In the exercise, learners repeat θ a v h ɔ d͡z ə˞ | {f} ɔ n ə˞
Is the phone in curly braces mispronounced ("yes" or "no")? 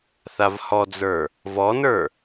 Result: yes